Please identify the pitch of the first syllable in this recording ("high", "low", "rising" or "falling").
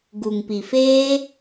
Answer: low